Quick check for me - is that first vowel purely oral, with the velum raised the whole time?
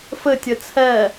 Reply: yes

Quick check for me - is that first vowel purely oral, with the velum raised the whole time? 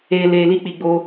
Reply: yes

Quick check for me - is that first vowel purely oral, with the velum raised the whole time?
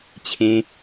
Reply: no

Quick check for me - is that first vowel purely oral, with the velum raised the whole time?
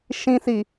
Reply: no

